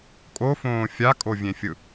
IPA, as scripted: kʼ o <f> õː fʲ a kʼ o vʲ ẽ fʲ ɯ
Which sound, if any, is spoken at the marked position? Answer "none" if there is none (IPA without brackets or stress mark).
f